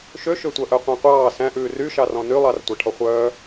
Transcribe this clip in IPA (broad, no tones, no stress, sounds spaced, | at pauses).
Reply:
ʃ ø ʃ ø tʷ œ ʔ œ qʷ æ̃ qʷ ɑː s æ̃ ʔ ʉː r y ʃ ɑ r ɔ̃ n y lˠ ɑ r tʷ æ ʈʰ ɔ χʷ œː